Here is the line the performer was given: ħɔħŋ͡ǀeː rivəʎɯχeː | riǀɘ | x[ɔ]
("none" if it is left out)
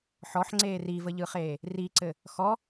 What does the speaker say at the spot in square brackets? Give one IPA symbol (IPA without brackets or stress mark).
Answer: ɔ